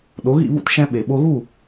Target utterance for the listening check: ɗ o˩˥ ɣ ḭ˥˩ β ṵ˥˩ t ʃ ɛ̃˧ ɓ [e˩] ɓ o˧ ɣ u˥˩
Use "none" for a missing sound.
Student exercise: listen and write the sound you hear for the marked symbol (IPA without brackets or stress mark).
e˩